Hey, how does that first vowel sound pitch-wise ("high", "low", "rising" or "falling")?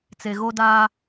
low